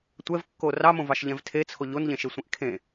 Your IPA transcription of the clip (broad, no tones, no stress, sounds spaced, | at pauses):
tʷ ɛ v kː o r ɑ m õ v ɑ ʃ ʎ ɛ̃ v tʰ e t͡sʰ o ʎ o n ʎ ẽ ʃ e sʷ ẽ ʔ kʰ ẽ